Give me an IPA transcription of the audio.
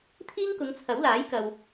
t̪ʰ iː˥ ŋ k ʊ˨˧ ŋ t͡sʰ ɐ˨˥ w l aː˨˥ j k ɐ˨ w

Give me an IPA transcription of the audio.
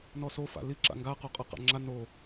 n ɔ s o f a̰ l i ǁ a̰ ŋ ɡ a q o qʼ ʌ q a̰ ŋ͡ǁ a n o

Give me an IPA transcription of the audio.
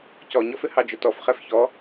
c ɔ ɲ ɔ f ɪ h ɑ d͡ʒ ʊ t ɔ f χ ɛ f ç ɔ

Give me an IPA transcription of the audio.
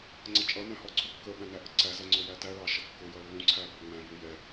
ŋ͡ǀ ʌ t͡ʃʼ ʌ n æ̃ h ɔ ǀʰ u kː ə ɓ æ̃ n æ ʔ ə ǀ æ z ɜ ŋ͡ǀ ʊ j æ t æ ɭ ɑ ʃ ʌ kː ʊ j ʌ lː ũ ǀʰ æ b ɜ ŋ͡m æ̃ v u j ɛ

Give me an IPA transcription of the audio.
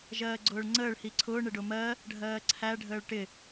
ʒ ɜː ɡ͡ǀ ʊː ɭ ŋ͡ǀ əː ɭ h i ǀʰ ʊː ɳ ɪ ɖ ʊ m ɜ | ɖʱ ɜː ǀʰ æ ɖʱ əː ɭ ʈ ɪ

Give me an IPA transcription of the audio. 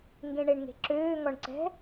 ŋ ɡ ẽ ɳ e ɳ ŋ e̤ ǁ øː ŋ ɔ ɳ ǀ ɛ̤

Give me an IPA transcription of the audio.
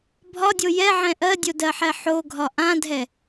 bʱ ɒ dʲ o j ɛ ʕ ɛ̃ ʔ ɜ dʲ o d ɜ ħ ɛ ħ o ɡʱ ɒ ʔ ã dʱ ɛ

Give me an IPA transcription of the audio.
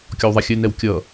kʲ ɔ w ðˤ a xʲ ɘ n ɛ w kʲ ʌ

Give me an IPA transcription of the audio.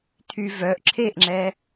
tʰ y v œ ʔ ǁʰ e ʔ ŋ͡ǁ ɛ

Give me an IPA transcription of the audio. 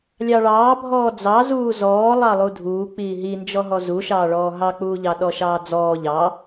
lʲ ɑ ɭ ɑː bʱ ɔː d͡z ɑ z uː z ɔː lˠ ɑ lˠ u dʱ uː k͡p iː ɦ i n d͡ʒ ɔ ɦ ɔ z u ʃ ɑː ɭ ɔː ɦ ɑ k͡p uː ʎ ɑ ɗ ɔ ʃ ɑː d͡z ɔː ʎ ɑ

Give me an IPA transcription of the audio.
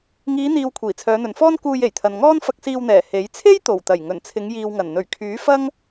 ŋ iː˨˧ n̪ iː˨ w kʷʰ iː˨˩ t͡sʰ œː˨˧ n̪ ɵ˨ n f ɔː˥ n k uː˧ j e˨˩ j t̪ʰ ɐ˨ n ŋ ɔː˥ n f ɐ˧ k̚ s iː˧ w n̪ ɛː˨˩ h e˨˥ j t͡sʰ e˥ j t̪ o˨˩ w t̪ ɐ˨˩ j ŋ ɵ˨˩ n t͡sʰ ɪ˨˧ ŋ j iː˨ w ŋ ɐ˨˩ n n̪ ɵ˨˩ ɥ kʰ yː˨˥ f ɐ˥ ŋ

